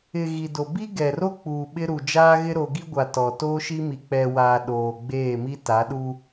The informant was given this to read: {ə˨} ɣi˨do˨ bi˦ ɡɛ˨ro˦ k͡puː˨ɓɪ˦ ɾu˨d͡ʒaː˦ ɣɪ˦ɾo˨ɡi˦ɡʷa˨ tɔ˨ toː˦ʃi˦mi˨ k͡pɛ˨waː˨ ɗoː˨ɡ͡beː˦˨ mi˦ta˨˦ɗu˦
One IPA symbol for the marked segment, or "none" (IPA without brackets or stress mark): ɪ˨